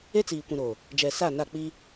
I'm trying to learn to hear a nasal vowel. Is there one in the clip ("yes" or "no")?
yes